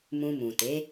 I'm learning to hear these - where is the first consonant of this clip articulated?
lips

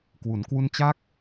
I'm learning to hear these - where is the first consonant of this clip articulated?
velum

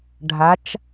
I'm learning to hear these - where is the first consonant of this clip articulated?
retroflex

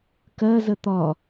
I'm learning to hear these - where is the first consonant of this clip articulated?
velum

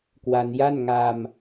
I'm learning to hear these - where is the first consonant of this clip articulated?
velum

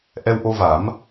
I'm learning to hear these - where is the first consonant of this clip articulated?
throat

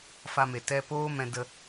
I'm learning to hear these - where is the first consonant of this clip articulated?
lips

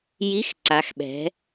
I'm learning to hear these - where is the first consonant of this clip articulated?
palate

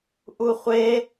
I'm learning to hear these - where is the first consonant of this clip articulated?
throat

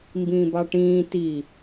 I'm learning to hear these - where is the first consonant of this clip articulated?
lips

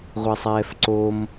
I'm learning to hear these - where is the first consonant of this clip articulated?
uvula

